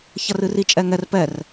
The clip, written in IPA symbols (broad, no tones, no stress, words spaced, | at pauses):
çɐrɨri t͡ʃʼɛŋɛr pɛr